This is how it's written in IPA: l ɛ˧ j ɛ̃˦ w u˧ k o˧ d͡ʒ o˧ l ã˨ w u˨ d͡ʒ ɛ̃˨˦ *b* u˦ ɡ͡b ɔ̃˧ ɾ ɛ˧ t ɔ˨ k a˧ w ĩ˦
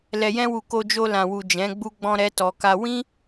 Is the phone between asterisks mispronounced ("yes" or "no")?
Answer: yes